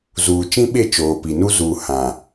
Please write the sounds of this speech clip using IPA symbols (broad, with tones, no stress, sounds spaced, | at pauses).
z uː˨ t͡ʃ ĩ˦ ɓ e˦˨ t͡ʃ oː˨ p i˨ n u˦ z u˨ h ã˨